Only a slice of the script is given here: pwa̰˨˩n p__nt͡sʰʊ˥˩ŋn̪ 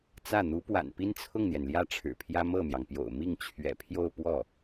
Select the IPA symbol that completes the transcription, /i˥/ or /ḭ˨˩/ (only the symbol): i˥